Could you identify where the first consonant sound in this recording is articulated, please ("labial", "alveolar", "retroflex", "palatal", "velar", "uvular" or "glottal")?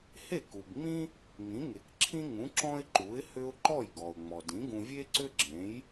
glottal